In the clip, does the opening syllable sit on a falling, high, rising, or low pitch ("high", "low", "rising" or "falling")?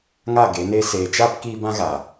falling